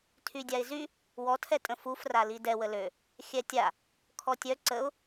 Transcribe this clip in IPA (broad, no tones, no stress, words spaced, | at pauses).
tʰydʲaɪ̯zy | wɔtʰɛtʼə̃ fufrali dɛwə lø | xʲɛtʲa | kʰɔtʲœ ǀəʊ̯